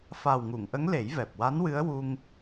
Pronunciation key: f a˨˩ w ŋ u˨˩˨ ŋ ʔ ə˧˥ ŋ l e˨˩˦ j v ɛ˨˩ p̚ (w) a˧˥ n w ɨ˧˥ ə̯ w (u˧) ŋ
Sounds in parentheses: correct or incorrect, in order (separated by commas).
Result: correct, correct